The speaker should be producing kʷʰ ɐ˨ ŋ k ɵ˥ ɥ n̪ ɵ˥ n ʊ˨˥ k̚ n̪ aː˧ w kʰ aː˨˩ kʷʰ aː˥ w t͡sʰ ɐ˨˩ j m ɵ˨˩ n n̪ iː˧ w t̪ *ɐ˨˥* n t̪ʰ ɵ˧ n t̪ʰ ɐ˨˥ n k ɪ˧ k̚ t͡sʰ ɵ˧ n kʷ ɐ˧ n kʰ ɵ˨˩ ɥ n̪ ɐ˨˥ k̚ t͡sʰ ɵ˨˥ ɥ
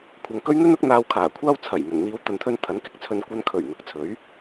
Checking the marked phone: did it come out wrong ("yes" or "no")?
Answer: yes